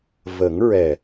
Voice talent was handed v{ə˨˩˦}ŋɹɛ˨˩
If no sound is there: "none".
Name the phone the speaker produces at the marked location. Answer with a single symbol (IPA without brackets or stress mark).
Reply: ə˨˩˦